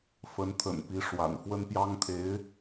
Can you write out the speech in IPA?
fə˧˥nt̪ʰə̰˨˩npi˧˥ ʂwa̰˨˩n fwə˥npjɑ˥ŋt̪ʰe˧˥ɪ̯

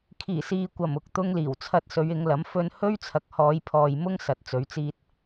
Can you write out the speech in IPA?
kʰiː˨˩siː˨kʷɐ˨˩m ʊ˨˥k̚t̪ʊ˥ŋliː˨˩wt͡sʰɐ˥t̚ sɵ˨˧ɥɪ˨˧ŋlɐ˨˥m fɵ˧nhɵ˥ɥt͡sʰɐ˨k̚ hɔː˨˧jpʰɔː˨jmʊ˥ŋ sɐ˨˥t̚t͡sɵ˨˥ɥt͡siː˧t̚

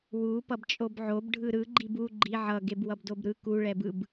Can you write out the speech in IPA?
wu pʌbt͡ʃʼobʕob ɖʱɯɾɯ ɡ͡ǃibu ɡ͡ǃi ʕʌ ɡebwʌbdobɾɯ ku ɭɛbɯb

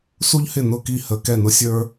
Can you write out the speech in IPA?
su˥ʎhɪ˥˩ nʊ˥˩ki˥˩ hə˧˩˧ kɛ˥˩nʊ˥sʲə˞˥

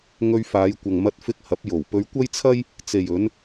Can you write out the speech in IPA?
ŋɵ˧ɥfaː˨˧jkʷɐ˨ŋ mɐ˧t̚fɪ˧k̚hɐ˨˥p̚ jo˨˩wpɵ˧ɥ kʷɐ˥jt͡sʰɐ˥j | t͡se˨jɵ˨˧n

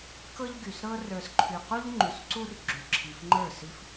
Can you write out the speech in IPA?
kɤ˦ʎɡy˨sɾɤ˦ rə˞˨sǃʰy˨qu˦ʎ ŋ͡ǃy˨sǀu˦r ɡ͡ǁy˨ǁʰi˨f ŋ͡ǃə˞˦˨si˦f

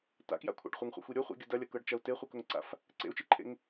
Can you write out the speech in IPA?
ta̰kja̰kʷʰa̰ɖ χʷɐŋχʷa̰xʷi ɾʲʊ χʷḭɡʲʊ dɐlʲɐkɤɖt͡ʃɐu̯ teχʷikʊŋǀa̰f | ǀḛu̯t͡ʃiǃʰḛŋ

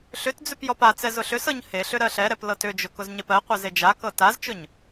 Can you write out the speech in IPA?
ɬʏtd͡zʏp jɔpat͡sɛ zʊɬʏsɤɲ heɬʏ ɾɜɬɛɾɛp lɤtʏd͡ʒʊ kʊzɲepɜqʷɜz ed͡ʒakɤ tazt͡ʃʊɲ

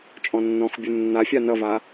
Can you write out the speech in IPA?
t͡ʃʼɔ̃nːɔ̃xbʲu nːafʲa nʌva

